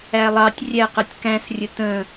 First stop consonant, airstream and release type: plain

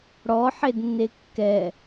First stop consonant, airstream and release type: plain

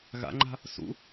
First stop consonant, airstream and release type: click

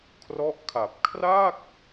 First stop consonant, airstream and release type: aspirated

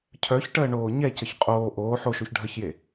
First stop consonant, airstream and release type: aspirated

